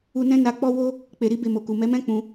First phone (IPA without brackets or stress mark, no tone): u